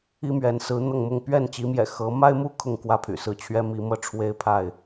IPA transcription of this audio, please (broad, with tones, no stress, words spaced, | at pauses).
i˦mɥɛ˨˦n sɹ̩˨˦ n̪ɤ˥˨ŋmʊ˥˨ŋ pɥɛ˥˨nt͡ɕi˨˦mjɛ̰˨˩ xɤ˨˦ ma˦ɪ̯mu˦ kʰʊ˥˨ŋkwä˥˨pʰy̰˨˩sɹ̩˥˨ t͡ɕʰɥɛ˦mi˨˦ mɤ˥˨ ʈ͡ʂʰwe˦ɪ̯pʰa˥˨ɪ̯